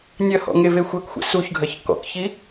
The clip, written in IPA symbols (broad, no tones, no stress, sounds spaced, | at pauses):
nʲ ɐ h ɔ̰ ŋ e v e xʷ ɐ k xʷ ɛ̰ s u ç ɡʱ ɐ ç k ɔ̰ k ç i